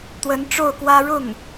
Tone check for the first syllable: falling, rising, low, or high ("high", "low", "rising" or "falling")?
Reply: rising